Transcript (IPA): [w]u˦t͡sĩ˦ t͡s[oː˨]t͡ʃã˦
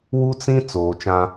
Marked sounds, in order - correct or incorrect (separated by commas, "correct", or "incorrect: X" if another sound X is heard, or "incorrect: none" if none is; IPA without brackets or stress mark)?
correct, correct